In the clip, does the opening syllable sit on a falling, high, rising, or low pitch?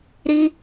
high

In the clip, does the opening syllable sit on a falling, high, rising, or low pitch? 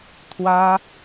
high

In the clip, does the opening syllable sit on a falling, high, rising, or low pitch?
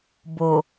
low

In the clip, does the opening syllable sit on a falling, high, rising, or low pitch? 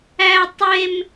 high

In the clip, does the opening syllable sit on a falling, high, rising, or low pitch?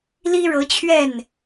high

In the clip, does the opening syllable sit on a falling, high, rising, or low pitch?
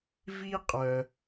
high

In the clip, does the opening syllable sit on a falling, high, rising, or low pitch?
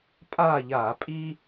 falling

